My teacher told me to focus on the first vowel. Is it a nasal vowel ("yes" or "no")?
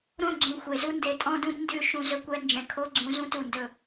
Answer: yes